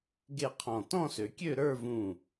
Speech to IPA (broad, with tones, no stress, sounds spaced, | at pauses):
ɡ e˥˧ qʰ ɔ̃˧˩ t ɔ̃˥˧ s ø˩˧ kʲ ø˥˧ ɾ ə˞˥˧ v ũ˧˩